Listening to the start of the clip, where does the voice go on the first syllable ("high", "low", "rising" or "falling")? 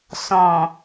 low